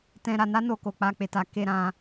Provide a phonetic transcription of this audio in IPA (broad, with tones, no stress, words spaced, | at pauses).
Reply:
tɛ̃˧ ɾa˧na˦no˧ko˨ k͡pa˧ k͡pe˨ta˨ke˧ ɾã˧